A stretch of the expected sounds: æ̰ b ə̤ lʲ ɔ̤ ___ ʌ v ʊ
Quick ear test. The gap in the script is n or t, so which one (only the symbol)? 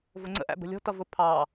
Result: t